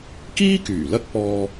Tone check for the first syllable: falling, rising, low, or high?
high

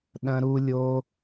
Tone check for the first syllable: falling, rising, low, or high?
high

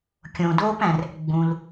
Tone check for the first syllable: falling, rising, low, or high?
low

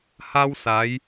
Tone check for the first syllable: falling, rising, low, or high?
high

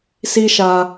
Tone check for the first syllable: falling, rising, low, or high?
high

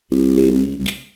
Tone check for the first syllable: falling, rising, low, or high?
low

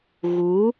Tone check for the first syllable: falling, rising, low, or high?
rising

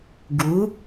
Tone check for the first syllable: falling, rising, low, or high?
rising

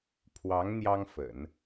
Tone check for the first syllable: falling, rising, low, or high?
rising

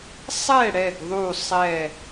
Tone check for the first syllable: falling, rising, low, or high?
falling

